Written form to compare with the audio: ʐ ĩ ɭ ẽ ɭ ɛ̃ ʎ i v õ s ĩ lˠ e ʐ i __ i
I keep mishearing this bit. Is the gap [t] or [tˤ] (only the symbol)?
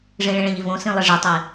tˤ